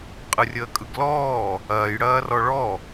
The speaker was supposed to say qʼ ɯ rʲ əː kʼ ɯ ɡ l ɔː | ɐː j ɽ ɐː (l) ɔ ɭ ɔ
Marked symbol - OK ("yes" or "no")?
no